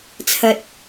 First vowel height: low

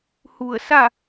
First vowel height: high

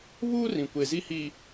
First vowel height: high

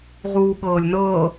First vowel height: high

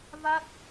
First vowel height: low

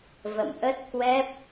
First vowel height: mid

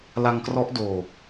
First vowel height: low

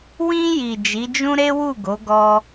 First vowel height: high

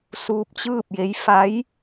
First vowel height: high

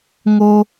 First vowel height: mid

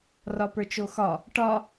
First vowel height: low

